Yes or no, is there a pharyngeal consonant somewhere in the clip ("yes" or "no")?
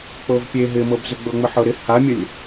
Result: yes